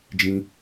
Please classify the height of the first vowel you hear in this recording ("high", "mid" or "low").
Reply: high